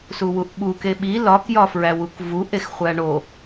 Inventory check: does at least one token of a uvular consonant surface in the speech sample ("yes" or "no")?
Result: yes